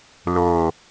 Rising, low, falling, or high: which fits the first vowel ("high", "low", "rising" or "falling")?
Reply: low